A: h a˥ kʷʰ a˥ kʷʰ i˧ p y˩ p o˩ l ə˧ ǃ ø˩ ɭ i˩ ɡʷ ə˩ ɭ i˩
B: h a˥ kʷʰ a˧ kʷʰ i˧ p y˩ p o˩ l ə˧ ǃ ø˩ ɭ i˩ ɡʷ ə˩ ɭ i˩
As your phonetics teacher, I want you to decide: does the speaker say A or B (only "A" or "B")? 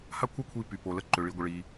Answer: A